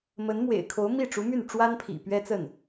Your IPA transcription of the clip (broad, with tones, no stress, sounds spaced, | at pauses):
m ə˧˥ n m w ḛ˨˩ ɪ̯ kʰ o˧˥ ʊ̯ m i˥˩ ʈ͡ʂ u˧˥ m y˥˩ n ʈ͡ʂ w a˥ n pʰ ḭ˨˩ p ɥ ɛ˥ t͡s ə˥˩ n